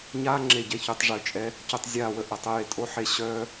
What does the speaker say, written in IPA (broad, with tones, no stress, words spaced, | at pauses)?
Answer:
ɲaː˦ŋ͡ǁe˨ɟɛ˨çy˨tˤ ʐø˧t͡ʃʼɛ˦ | cø˧tˤzʲaː˦˨wə˧ ʔə˨tˤə˧je˧tʼo˦ ħe˧ɕœː˦